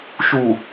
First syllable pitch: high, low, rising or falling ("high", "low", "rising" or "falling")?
low